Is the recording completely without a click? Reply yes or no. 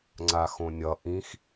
no